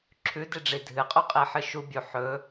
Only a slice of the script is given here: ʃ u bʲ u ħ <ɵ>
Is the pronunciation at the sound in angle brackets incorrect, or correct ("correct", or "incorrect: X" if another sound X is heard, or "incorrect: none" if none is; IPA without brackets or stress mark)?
correct